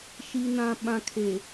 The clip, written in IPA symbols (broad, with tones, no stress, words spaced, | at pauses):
ʃi˨nã˨ ɓã˨kʰe˨